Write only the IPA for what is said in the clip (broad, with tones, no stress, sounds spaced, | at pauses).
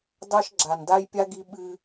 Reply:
d ɑ˦ ʃ ɡ͡ǁ a˨ n d a˦ j pʲ a˦ ɡ i˦ ɓ ɨ˦